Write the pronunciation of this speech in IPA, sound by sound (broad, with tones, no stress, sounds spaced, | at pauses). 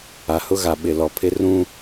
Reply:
a˨ h ʊ˦ ɣ a˨ ɓ ɪ˨ l ɔ˨ pʰ ɪ˦ r ũ˦